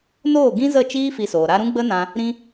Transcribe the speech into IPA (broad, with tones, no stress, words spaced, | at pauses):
noː˦˨ɡĩ˦zə˦˨t͡ʃiː˦ fi˧soː˨ɾa˦ ɾũ˦ ɡ͡bə˦nã˧ | ɾĩ˧